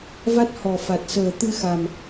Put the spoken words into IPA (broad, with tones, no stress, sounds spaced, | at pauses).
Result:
v a˦˥ t̚ h ɔ˨˩ f a˨˩ t̚ s əː˨˩ t̪ ɨ˧ x a˨˩ m